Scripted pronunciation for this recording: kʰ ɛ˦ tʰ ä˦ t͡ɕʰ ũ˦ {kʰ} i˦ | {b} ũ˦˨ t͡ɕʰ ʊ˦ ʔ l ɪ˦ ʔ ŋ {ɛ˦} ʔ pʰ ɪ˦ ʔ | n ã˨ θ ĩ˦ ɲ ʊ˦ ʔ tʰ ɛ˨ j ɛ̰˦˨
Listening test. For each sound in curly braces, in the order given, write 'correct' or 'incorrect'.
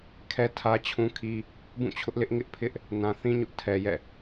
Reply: correct, correct, incorrect: ɪ˦

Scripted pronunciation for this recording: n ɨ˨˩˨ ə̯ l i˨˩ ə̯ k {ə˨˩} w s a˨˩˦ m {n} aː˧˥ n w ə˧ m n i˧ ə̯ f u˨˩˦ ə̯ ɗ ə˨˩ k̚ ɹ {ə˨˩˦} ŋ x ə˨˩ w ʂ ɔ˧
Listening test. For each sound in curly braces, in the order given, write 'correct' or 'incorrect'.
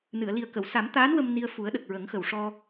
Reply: incorrect: ə˨˩˨, incorrect: t̪, correct

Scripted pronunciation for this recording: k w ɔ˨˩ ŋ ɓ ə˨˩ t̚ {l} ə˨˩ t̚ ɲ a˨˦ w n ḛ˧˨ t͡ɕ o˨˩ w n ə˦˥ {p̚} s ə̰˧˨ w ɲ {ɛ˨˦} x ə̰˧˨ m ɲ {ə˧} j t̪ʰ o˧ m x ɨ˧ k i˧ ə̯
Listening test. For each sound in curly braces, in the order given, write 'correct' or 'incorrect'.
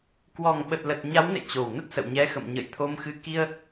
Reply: correct, incorrect: t̚, correct, incorrect: ə̰˧˨

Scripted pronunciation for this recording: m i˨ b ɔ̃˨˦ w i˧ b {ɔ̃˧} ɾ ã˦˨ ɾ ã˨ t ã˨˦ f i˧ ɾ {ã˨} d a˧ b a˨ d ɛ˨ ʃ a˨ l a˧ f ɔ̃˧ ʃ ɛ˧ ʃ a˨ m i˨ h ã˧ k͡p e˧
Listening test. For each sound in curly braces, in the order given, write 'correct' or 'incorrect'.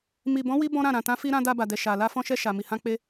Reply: incorrect: ɔ̃˦, incorrect: ã˧

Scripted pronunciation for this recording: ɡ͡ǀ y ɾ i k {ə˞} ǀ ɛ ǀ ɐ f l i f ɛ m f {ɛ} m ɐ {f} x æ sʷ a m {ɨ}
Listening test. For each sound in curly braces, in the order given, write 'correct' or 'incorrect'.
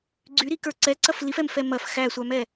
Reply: correct, correct, correct, incorrect: ɛ

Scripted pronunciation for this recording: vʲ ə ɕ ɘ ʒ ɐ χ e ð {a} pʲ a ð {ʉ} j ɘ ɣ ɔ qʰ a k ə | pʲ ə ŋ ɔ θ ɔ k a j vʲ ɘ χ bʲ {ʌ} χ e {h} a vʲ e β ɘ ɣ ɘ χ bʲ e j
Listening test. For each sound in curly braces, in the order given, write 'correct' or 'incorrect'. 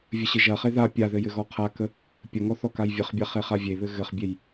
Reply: correct, incorrect: ɘ, incorrect: a, incorrect: χ

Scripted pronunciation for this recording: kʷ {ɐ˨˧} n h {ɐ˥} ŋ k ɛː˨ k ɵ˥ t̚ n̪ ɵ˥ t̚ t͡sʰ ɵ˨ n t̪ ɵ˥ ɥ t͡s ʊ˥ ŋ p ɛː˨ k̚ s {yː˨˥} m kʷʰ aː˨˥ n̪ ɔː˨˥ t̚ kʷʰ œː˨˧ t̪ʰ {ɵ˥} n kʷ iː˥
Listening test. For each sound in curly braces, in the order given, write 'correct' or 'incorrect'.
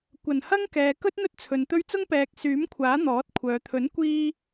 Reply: incorrect: ɐ˨˩, correct, correct, incorrect: ɵ˨˥

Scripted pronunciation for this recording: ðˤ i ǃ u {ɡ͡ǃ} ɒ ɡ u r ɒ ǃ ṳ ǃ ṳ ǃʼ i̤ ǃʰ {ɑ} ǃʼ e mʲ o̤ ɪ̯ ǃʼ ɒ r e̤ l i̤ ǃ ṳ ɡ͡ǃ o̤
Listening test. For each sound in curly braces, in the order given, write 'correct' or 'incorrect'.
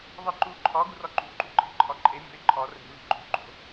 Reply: incorrect: ǃʰ, incorrect: ɒ

